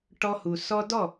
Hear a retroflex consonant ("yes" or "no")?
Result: yes